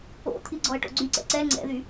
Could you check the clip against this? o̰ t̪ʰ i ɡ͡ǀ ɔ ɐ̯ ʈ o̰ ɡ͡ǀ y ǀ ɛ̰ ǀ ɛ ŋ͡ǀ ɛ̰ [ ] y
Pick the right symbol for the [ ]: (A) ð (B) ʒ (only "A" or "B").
A